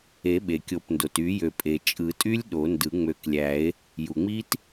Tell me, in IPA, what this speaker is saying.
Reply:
e˨˩˦ ɓ e˩ kʲ o˨˩˦ p n d o˩ t y˨˩˦ j ø˩ pʼ e˩ t͡ʃʼ ɯ˨˩˦ tʼ y˦˥ lʲ ɗ o˨˩˦ n d ɯ˨˩˦ ŋ͡m ø˨˩˦ k lʲ æ˨˩˦ e̯ | j u˩ ŋ͡m i˦˥ t

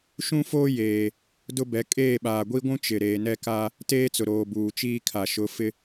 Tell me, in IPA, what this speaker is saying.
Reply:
ʃ ũ˦ f oː˦ j eː˨ | d ʊ˦ b ɛ˨˦ kʼ eː˦˨ ɓ aː˨ ɡʷ i˦ ɡʷ ũ˦ t͡ʃ ɪ˨ ɾ eː˨ n ɛ˦ k a˦ | t eː˦ t͡s ʊ˨ ɾ oː˨ b uː˨ t͡ʃ iː˦ kʰ a˨ ʃ ʊ˨˦ f ɪ˦

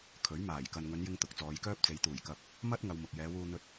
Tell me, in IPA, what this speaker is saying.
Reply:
kʰ ɵ˨˥ ɥ m aː˨˩ j k ɐ˨ n ŋ ɵ˨˧ n j ɪ˧ ŋ t̪ ʊ˨˥ k̚ t͡s ɔː˨˧ j k œː˥ p̚ t͡s e˨˧ j t̪ uː˨˩ j k ɐ˨ p̚ | m ɐ˥ t̚ ŋ ɐ˧ w m ʊ˨ k̚ j ɛː˨˧ w uː˧ n̪ ɵ˧ t̚

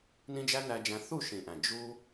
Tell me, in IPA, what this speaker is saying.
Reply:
n ĩ˦ d͡ʒ æ˦ n æ˧ d͡ʒ æ̃˧ θ u˦˨ ʃ ĩ˨ ʔ æ̃˨ d͡ʒ u˧

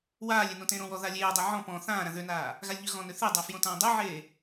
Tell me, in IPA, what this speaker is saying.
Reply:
w aː lʲ e n õ t ẽ ɾ õ w ɔ ð a lʲ eː dˤ e ʕ ɔ̃ p ɔ̃ θ ãː ɾ ã ð ø n aː | ɣ a lʲ ʎ ø ɣ ɔ̃ n ø θ e dˤ a f j õ t ãː dˤ e ʕ eː

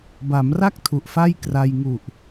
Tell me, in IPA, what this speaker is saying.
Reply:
b a˩˦ m r a˥˩ k̚ tʰ u˨˩ ʔ f a˥˩ j k r a˧ j ŋ u˨˩ ʔ

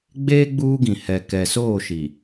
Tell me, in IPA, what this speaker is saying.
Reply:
ɡ͡b eː˦ ɡ͡b uː˦ ɡ ĩ˨ h ɛ˨ k ɛ˨ s oː˦˨ ʃ i˨

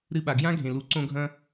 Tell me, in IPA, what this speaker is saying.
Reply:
ɾ ɨ˧ ɓ a˨ ɡ j ã˦ ɡʱ ẽ˨ l u˨ ǀ õ˧ ɡʱ ɐ̃˧

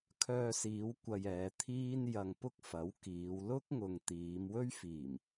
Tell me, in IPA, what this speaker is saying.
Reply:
kʰ œː˧ s iː˨˧ w kʷ ɐ˧ j ɛː˨˧ t̪ʰ iː˥ n j ɐ˧ ŋ p ʊ˥ k̚ f ɐ˨˥ w k iː˨˧ w l ʊ˥ k̚ ŋ ʊ˨ ŋ t̪ iː˨˧ m w ɵ˥ ɥ f iː˨˩ m

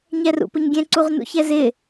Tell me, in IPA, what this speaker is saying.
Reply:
ɲ ɛ r ṵ p ʊ ɲ ɡʲ ɛ̃ ǀ u ʁ n ṵ ç ɛ z ɪ

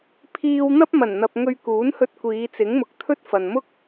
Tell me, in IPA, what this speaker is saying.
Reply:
pʰ iː˧ w n̪ ɐ˥ p̚ m ɐ˨˩ n n̪ ɐ˨ p̚ ŋ ɵ˧ ɥ k uː˨˥ n h ɵ˧ t̚ kʷ iː˨˧ t͡s ɪ˨˥ ŋ m ʊ˨ k̚ t̪ʰ ɵ˥ t̚ f ɐ˨ n m ʊ˥ k̚

